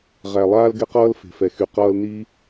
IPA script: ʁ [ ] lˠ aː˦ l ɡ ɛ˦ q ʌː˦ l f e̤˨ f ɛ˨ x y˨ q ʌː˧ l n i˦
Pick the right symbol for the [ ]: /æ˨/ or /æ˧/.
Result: æ˨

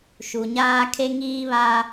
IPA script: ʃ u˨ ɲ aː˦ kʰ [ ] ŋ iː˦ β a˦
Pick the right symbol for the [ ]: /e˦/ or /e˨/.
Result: e˦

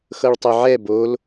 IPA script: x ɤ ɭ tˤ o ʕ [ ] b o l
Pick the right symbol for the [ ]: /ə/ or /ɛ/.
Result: ɛ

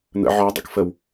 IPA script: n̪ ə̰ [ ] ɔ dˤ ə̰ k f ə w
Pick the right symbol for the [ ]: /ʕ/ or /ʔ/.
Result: ʕ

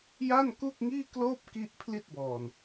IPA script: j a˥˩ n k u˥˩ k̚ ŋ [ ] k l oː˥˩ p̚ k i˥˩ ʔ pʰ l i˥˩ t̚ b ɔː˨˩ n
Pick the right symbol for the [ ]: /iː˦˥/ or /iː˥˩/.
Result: iː˥˩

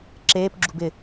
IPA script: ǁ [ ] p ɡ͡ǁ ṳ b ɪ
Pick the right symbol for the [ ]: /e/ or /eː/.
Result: eː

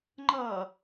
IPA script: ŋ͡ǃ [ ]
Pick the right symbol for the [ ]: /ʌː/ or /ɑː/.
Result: ʌː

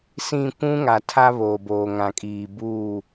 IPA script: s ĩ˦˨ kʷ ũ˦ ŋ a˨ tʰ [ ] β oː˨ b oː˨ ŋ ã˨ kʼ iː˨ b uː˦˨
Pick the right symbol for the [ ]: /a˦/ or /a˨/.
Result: a˦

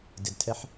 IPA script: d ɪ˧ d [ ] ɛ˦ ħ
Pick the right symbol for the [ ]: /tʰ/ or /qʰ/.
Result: tʰ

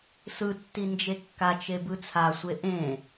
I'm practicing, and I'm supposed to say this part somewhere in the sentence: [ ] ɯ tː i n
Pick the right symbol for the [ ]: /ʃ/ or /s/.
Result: s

